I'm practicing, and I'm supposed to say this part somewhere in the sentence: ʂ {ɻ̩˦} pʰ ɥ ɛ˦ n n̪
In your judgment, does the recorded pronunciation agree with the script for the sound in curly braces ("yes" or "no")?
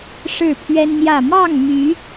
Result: no